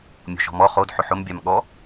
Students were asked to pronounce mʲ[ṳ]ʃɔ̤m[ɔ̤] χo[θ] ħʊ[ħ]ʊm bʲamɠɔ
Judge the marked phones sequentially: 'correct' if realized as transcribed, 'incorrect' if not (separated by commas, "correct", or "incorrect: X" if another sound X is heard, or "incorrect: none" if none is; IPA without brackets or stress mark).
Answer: incorrect: o̤, incorrect: ɔ, incorrect: d, correct